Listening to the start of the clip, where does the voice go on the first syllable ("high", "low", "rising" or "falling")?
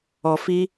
low